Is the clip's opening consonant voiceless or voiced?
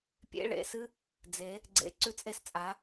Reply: voiceless